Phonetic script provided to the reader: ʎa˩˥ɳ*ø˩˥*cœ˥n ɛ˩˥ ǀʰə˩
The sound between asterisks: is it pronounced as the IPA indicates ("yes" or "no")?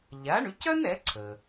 no